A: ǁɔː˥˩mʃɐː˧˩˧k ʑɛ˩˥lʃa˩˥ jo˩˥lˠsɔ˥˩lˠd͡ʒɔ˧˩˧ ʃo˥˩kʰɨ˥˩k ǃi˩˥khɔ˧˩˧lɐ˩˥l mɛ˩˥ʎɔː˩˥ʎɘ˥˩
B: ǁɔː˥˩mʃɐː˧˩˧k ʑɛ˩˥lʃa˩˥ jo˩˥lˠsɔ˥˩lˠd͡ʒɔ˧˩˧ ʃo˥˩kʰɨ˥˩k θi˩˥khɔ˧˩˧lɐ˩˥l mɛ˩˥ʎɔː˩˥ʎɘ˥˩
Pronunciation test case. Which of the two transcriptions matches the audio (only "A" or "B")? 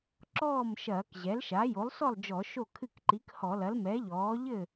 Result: A